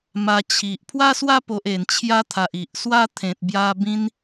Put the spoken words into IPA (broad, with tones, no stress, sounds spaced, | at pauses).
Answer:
m a˧ t͡ɕʰ i˨ ʔ pʰ w a˦ s w a˦ p o˨ ʔ e˨˩ n t͡ɕʰ j a˧ t̪ʰ a˨ ʔ i˨ ʔ s w a˦ t̪ʰ ẽ˨ t̚ b j a˧ b ĩ˧ n